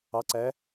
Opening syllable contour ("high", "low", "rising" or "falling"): rising